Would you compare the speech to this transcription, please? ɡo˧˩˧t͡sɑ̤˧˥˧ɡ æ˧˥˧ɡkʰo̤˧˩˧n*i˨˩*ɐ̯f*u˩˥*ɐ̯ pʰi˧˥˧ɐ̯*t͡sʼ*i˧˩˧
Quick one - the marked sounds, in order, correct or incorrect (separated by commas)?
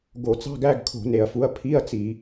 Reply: incorrect, correct, incorrect